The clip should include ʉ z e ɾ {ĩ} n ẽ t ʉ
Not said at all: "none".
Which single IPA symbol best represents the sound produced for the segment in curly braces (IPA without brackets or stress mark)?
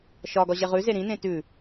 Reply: ĩ